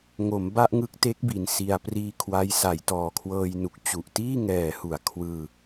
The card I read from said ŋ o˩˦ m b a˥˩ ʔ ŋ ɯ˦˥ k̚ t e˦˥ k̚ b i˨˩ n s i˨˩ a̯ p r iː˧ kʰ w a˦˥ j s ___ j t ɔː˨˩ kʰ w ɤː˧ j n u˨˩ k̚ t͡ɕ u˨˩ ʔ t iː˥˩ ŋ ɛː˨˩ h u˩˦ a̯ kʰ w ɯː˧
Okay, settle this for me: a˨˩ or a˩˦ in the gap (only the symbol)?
a˩˦